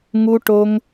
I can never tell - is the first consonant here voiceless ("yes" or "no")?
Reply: no